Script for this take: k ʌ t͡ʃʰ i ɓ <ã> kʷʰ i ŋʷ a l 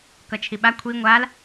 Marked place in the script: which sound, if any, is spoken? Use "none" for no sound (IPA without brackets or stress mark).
a